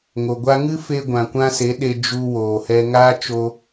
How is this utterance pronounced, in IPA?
ŋ o˨ ɡʷ a˦ ŋ ɨ˦ f e˧ ɡʷ ã˨ kʷ ã˦ s e˨˦ ɗ e˧ d͡ʒ u˧ w oː˨ h ɛ˧ ŋ aː˦ t͡ʃ o˧

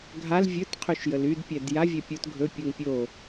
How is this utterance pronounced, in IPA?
ɡʱ a l vʲ ɵ t qʰ y ʃ j ə l y d pʲ ɛ d j a vʲ ɛ pʲ o t ɡʱ ɵ pʲ u ŋ pʲ o

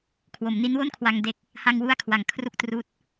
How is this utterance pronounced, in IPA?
kʰ w o˩˦ m n i˦˥ n w o˥˩ n kʰ w a˧ ŋ d e˦˥ k̚ | h a˧ ŋ w u˦˥ a̯ kʰ w a˩˦ ŋ kʰ r u˨˩ k̚ t r uː˦˥ t̚

